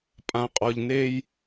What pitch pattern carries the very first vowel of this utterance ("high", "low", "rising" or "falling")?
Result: low